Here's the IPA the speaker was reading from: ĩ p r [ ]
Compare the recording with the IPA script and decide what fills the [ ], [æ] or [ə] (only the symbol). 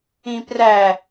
æ